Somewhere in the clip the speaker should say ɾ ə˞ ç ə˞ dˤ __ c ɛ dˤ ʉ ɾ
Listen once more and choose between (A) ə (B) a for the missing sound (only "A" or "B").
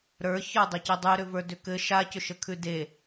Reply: A